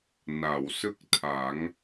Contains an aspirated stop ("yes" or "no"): yes